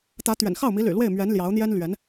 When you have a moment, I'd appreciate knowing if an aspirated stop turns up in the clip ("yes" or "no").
no